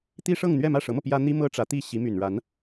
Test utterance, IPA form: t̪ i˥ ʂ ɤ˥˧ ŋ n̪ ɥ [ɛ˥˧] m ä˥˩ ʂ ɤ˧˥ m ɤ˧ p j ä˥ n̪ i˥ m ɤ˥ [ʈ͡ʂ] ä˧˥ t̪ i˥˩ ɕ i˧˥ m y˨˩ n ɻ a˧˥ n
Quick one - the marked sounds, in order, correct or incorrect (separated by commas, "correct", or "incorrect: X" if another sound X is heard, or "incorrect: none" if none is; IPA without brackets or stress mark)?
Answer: correct, correct